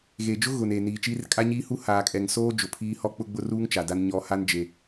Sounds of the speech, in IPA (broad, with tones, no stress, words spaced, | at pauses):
ɣeː˨d͡ʒʊ˦ ɣʊ˨ne˨ niː˨t͡ʃiː˦r kʼa˦ɲiː˦hu˦ haː˨kʼɛ˨ŋsoː˦ d͡ʒʊ˨pʰiː˦ hɔ˦ k͡pʊ˦ɡ͡bʊ˦ruː˦ŋ t͡ʃa˨da˦n ɲɔ˨˦ ha˦nd͡ʒe˨